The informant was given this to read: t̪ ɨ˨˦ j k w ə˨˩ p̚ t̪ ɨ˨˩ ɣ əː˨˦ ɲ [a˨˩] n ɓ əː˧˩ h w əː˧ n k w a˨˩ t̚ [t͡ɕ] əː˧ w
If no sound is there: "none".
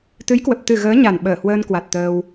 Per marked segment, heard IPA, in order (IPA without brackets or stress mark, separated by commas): a˨˩, t̪